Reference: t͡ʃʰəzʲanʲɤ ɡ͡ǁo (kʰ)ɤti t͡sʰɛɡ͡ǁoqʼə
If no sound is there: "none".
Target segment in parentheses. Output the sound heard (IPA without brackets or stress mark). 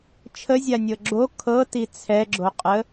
kʰ